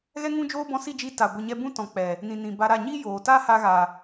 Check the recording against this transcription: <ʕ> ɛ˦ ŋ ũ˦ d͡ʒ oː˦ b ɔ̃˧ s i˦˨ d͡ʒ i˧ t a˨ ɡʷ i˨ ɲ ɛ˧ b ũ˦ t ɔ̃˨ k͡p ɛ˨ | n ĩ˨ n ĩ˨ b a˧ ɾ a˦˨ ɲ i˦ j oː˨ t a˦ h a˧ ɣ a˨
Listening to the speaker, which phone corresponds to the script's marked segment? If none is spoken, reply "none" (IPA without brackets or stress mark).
ɣ